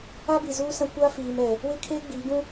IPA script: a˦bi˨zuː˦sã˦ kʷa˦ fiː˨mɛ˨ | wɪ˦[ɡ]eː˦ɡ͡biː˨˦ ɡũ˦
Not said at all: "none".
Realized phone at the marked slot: kʰ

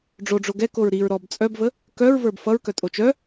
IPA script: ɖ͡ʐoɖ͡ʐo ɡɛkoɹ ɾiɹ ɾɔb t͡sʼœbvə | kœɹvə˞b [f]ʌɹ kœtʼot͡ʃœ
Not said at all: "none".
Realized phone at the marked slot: f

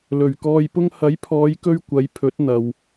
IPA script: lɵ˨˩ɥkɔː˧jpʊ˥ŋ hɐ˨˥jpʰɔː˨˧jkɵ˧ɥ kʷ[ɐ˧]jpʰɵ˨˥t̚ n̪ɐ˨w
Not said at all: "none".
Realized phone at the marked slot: ɐ˨˧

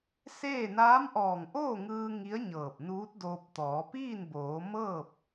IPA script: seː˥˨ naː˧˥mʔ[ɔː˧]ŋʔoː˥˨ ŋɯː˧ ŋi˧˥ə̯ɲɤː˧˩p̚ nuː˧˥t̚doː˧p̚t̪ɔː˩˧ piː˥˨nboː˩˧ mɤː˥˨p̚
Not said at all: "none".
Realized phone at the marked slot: ɔː˧˩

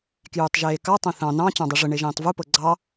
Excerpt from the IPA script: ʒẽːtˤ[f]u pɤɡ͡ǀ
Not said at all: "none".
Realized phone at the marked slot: v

